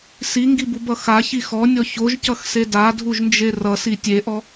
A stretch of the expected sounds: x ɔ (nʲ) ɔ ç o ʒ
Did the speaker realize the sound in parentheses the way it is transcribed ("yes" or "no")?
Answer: yes